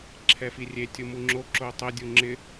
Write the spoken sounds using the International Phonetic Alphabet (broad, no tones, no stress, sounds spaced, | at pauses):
ǁʰ ɛ f i rʲ e tʲ u m u ŋ͡ǁ o ǁ o tˤ ɛ dʲ u ŋ͡ǁ ɪ